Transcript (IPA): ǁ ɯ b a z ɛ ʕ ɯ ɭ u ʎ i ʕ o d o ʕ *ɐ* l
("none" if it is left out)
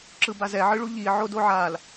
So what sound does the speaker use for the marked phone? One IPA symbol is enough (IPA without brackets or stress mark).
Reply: a